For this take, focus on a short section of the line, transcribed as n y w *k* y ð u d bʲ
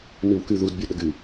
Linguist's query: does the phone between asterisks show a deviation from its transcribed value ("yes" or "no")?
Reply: no